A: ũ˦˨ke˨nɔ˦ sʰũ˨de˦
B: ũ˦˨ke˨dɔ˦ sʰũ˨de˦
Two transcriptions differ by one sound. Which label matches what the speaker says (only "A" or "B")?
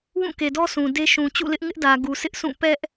B